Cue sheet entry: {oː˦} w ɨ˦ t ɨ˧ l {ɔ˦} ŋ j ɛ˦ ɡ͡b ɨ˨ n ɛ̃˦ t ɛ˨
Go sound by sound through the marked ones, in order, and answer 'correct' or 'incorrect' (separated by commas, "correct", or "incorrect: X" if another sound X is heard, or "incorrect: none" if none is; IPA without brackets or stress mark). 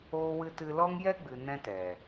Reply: correct, correct